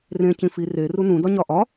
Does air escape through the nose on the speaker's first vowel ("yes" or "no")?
yes